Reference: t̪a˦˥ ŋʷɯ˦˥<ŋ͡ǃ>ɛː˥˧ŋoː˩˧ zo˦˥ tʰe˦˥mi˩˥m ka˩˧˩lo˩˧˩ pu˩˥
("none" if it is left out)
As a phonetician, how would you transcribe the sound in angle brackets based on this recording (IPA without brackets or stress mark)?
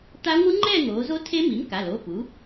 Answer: ŋ͡ǃ